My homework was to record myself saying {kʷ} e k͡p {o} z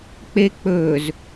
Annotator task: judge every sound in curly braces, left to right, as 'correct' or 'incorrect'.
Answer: incorrect: k͡p, incorrect: ɵ

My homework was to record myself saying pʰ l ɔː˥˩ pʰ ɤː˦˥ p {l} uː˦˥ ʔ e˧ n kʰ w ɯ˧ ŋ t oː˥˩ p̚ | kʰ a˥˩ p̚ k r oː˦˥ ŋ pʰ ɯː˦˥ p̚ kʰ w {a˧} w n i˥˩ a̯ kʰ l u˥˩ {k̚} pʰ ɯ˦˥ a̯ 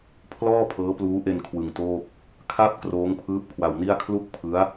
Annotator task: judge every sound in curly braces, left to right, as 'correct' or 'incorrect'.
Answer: correct, correct, correct

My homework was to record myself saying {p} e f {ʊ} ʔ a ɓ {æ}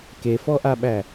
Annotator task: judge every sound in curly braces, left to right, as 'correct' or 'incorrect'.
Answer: incorrect: k, incorrect: ɔ, correct

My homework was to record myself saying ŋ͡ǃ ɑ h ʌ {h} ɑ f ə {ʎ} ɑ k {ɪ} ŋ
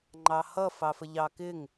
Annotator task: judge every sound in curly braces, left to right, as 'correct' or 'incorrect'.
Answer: incorrect: f, correct, correct

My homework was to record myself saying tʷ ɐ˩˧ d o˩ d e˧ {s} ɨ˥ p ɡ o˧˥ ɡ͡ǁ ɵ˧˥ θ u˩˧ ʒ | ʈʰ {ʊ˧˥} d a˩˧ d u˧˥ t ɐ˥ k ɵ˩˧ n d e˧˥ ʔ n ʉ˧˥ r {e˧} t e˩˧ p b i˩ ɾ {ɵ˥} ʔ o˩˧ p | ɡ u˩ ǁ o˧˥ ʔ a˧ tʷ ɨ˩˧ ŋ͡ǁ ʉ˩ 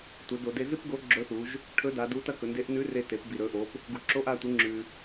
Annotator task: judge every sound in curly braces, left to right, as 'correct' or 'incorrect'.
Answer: incorrect: z, incorrect: ɵ˧˥, correct, incorrect: ɵ˩˧

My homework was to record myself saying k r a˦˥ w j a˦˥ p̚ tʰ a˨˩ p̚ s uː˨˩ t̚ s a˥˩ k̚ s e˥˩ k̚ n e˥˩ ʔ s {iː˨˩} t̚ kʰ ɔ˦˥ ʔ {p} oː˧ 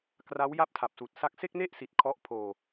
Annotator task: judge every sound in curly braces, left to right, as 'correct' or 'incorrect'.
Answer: incorrect: i˨˩, incorrect: pʰ

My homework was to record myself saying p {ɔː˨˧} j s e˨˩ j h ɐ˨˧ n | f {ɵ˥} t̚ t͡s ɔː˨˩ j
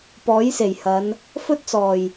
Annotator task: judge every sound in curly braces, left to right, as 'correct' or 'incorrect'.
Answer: incorrect: ɔː˨˥, correct

